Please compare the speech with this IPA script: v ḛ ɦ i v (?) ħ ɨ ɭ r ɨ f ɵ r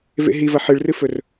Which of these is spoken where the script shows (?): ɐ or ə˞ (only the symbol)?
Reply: ɐ